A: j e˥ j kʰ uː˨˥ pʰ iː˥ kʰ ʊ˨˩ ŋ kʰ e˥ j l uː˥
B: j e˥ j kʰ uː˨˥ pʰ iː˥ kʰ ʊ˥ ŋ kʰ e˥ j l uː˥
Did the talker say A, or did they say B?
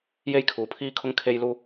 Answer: B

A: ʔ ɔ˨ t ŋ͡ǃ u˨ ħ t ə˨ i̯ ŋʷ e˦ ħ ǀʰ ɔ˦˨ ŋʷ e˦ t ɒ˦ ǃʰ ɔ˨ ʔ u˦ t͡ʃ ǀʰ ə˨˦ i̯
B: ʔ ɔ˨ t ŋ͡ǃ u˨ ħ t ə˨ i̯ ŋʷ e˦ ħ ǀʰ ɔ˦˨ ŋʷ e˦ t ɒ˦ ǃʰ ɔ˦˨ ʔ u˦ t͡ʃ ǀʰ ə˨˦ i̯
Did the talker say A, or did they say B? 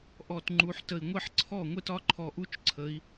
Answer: A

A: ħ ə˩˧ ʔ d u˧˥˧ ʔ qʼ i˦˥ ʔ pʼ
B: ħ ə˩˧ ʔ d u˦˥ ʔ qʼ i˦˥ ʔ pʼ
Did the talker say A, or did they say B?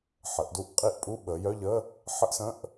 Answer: B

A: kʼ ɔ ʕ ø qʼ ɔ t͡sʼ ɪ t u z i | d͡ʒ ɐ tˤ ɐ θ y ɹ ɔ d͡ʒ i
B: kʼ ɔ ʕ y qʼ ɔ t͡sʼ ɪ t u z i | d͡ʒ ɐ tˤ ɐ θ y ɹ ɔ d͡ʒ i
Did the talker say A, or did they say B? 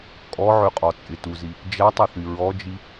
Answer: A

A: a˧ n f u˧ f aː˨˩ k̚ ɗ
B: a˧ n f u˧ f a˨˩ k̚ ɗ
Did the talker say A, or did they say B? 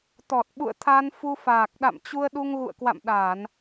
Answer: A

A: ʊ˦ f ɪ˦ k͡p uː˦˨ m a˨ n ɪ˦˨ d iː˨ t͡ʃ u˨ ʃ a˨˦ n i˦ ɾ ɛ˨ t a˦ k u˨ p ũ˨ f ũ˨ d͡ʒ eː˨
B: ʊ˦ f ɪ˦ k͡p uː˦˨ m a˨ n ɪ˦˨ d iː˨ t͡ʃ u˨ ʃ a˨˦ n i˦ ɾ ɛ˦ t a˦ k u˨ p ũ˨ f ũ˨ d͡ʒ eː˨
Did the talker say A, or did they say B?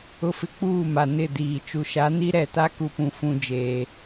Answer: A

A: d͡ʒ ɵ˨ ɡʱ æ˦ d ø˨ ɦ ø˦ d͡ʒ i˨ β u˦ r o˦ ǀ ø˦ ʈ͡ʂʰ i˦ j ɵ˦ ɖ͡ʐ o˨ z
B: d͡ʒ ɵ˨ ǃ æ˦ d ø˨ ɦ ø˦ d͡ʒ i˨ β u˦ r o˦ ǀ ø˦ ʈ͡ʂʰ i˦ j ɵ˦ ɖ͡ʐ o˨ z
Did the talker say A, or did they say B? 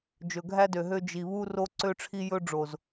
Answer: A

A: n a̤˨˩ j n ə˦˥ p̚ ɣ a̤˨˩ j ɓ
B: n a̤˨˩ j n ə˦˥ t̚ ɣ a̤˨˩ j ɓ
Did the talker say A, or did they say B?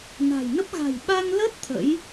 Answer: A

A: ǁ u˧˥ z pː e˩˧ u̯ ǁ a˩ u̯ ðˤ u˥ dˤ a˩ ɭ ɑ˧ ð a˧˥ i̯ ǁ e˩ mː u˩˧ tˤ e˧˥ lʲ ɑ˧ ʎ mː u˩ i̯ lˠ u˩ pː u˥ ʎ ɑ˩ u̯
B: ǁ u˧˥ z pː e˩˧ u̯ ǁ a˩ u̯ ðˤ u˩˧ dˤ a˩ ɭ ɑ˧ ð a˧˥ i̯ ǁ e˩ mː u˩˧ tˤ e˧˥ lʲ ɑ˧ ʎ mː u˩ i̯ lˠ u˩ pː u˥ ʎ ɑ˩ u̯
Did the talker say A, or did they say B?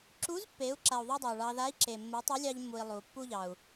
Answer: A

